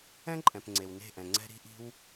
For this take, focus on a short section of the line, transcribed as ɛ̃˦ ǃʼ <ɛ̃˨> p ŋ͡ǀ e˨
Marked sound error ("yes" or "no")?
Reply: no